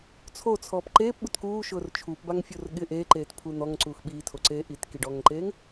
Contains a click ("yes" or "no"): yes